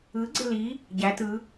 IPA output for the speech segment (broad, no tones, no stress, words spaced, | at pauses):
ɯ ɡ͡ǀeli | ɟæ tɯ